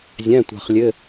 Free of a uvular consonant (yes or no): no